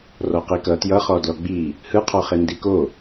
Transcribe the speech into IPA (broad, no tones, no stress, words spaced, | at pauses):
rɔqikʌ tjʌχɔ dlɔɡ͡bi | hɯqʰɔχe ndiko